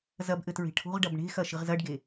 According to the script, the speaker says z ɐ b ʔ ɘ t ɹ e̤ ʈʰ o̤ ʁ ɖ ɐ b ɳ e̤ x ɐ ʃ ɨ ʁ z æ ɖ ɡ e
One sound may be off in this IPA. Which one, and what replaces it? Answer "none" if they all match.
æ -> ɐ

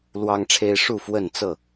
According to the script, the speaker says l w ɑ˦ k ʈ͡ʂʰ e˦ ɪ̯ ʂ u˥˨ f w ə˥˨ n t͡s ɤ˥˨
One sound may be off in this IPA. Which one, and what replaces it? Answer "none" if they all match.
k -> ŋ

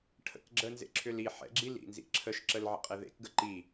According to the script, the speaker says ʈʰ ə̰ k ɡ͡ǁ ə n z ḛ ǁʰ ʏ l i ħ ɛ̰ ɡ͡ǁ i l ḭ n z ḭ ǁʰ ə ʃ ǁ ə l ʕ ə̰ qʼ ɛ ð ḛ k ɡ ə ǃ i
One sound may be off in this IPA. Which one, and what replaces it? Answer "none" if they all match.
none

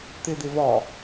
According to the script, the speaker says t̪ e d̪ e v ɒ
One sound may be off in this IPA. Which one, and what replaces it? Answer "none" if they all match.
none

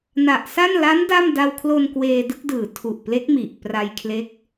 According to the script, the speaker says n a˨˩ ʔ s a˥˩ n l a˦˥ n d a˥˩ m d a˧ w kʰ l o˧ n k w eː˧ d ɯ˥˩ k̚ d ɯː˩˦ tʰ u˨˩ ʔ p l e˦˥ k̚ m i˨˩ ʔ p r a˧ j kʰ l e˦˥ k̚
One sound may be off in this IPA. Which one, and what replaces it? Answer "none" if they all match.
none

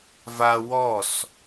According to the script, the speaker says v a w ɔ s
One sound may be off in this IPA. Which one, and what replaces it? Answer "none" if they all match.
none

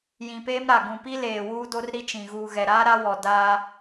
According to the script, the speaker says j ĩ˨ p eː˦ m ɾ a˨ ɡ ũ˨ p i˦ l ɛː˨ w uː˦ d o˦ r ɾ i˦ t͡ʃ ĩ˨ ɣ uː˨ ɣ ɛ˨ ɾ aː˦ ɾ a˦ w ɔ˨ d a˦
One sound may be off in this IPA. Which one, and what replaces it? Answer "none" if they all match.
ɛː˨ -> eː˨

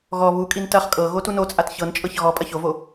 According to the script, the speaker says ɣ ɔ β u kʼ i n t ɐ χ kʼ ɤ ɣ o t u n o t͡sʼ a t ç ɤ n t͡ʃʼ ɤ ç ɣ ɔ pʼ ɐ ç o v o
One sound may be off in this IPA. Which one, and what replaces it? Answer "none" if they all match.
none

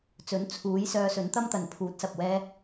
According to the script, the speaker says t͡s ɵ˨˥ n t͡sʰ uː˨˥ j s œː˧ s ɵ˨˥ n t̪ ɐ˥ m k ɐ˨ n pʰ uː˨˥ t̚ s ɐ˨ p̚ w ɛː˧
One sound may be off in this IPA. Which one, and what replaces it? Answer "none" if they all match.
k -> t̪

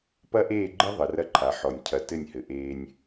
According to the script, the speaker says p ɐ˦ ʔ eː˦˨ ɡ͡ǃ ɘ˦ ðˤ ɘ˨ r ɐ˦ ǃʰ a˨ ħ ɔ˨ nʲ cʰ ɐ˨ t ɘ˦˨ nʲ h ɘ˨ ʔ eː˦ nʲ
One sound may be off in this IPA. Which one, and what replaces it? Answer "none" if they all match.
none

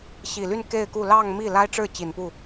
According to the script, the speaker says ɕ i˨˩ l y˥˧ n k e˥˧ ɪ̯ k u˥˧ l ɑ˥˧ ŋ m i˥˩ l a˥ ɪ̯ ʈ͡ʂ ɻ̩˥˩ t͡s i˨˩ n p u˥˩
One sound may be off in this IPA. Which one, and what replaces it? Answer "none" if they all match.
t͡s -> t͡ɕ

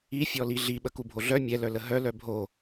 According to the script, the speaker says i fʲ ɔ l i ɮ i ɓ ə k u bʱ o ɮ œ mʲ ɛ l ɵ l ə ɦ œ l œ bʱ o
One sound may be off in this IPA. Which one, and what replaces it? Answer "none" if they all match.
ɵ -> œ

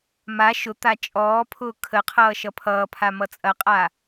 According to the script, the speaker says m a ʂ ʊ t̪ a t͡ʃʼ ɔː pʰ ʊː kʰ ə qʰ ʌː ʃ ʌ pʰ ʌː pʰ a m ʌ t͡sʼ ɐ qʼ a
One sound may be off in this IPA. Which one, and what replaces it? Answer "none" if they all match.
ʂ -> ʃ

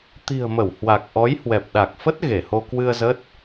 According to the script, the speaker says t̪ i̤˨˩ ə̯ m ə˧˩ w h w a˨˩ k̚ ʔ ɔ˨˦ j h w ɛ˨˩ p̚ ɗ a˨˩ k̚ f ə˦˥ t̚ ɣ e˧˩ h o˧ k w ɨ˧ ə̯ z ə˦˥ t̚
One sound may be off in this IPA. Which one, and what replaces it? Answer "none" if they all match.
none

